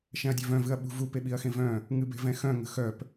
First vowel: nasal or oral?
nasal